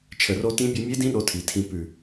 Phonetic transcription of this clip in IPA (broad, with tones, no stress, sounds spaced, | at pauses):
t͡ʃʰ ə˨˩ r o˧ t ĩ˧˥ bʲ o˧ mʲ e˧˥ d ĩ˧˥ ɗ o˧ tʰ i˨˩ tʰ ĩ˧ p ʉ˨˩